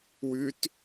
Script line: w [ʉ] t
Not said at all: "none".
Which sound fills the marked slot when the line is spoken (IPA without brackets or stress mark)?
ʉ